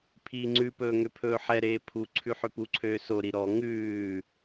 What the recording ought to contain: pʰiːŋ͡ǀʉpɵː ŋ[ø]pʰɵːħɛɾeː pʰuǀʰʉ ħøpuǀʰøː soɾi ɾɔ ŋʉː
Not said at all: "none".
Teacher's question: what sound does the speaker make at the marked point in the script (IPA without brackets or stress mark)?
ø